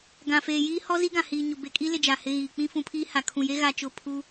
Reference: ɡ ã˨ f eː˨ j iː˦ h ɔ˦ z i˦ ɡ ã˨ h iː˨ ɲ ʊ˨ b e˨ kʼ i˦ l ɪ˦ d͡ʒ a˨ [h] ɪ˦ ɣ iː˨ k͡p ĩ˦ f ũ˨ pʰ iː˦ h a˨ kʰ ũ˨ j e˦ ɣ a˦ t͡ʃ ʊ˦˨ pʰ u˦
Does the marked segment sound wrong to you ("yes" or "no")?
no